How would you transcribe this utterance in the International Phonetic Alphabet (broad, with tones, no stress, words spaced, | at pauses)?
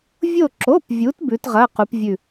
vʲo˧˩ǁo˩˧˩pvʲu˩˧t bʉ˩˧tʁɐ˩˧˩qu˩˧pvʲʉ˧˩